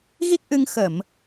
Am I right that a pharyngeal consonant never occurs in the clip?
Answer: yes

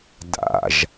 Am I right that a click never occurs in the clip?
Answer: yes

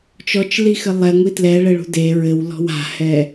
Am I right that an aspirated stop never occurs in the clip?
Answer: yes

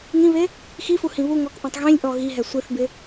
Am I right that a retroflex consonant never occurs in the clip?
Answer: yes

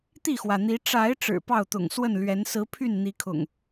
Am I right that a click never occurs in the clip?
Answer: yes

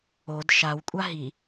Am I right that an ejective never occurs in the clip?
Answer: no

